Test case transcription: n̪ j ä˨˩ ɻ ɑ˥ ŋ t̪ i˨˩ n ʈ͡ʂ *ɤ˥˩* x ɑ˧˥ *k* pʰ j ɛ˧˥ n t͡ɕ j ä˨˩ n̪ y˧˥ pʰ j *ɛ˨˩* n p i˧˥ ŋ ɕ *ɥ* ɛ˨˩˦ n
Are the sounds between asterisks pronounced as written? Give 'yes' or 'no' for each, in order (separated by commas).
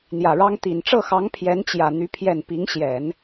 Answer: yes, no, yes, no